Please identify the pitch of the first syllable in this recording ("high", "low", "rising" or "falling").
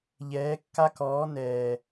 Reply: rising